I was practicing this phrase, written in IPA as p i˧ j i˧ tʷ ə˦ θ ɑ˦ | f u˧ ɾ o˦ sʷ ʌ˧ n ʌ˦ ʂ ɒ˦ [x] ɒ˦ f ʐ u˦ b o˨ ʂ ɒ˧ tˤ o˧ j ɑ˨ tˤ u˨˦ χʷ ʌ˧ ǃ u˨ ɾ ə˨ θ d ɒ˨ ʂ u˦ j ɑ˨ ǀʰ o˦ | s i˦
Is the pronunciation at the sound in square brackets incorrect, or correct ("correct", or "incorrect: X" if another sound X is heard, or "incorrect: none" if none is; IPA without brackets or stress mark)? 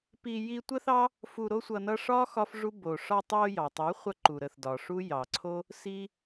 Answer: correct